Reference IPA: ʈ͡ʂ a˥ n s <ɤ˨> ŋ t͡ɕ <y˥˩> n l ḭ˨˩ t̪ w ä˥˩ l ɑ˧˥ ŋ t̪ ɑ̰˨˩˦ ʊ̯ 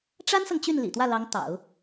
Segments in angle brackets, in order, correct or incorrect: correct, correct

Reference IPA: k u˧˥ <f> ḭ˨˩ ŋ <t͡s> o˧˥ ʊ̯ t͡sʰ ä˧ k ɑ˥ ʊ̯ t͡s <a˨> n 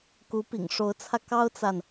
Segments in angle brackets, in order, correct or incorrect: incorrect, incorrect, correct

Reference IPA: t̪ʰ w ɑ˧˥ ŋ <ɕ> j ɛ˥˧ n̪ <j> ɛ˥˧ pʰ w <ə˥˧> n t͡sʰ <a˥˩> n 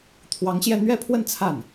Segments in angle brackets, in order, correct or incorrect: correct, incorrect, correct, correct

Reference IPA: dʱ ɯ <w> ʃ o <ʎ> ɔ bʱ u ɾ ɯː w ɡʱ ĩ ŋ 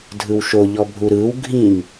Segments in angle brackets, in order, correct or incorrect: correct, correct

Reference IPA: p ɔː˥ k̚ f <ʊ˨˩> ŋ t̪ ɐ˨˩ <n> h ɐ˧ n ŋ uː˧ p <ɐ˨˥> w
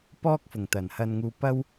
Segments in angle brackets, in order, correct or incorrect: correct, correct, incorrect

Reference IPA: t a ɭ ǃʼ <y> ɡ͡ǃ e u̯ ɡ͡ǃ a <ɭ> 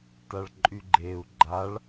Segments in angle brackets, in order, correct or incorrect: correct, correct

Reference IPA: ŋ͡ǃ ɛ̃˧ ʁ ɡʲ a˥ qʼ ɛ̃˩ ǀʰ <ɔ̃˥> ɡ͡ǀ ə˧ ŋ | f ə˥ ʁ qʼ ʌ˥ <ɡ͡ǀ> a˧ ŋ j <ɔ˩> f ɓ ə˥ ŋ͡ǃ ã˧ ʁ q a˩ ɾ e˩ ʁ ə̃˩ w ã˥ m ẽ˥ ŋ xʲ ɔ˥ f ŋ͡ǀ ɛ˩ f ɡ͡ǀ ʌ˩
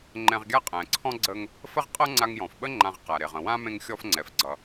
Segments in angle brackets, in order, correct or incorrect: correct, incorrect, incorrect

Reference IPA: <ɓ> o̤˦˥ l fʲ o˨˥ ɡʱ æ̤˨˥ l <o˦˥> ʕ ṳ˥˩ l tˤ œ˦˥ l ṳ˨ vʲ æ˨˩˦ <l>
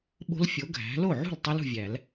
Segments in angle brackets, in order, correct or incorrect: correct, incorrect, correct

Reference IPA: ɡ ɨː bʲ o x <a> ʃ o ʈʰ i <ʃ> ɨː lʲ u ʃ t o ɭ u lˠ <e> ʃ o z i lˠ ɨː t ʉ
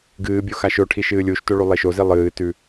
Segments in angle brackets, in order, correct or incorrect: correct, correct, correct

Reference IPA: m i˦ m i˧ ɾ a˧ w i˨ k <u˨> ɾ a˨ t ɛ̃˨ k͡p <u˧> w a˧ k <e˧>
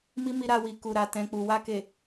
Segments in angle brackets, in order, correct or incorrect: correct, incorrect, incorrect

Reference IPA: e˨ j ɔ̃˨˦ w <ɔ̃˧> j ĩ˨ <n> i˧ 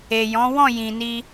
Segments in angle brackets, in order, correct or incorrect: incorrect, correct

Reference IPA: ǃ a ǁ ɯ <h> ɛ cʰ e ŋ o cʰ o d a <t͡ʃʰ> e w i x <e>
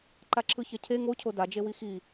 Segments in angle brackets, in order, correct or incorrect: incorrect, incorrect, incorrect

